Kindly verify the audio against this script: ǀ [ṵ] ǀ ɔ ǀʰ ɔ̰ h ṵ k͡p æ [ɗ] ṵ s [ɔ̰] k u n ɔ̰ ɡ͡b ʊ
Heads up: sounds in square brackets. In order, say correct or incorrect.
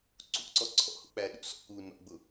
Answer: correct, correct, correct

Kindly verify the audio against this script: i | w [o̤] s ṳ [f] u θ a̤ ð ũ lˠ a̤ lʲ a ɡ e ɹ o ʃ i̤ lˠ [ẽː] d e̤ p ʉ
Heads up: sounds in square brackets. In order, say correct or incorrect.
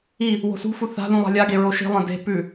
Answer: correct, correct, incorrect: ẽ

